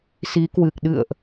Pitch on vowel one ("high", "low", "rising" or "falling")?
rising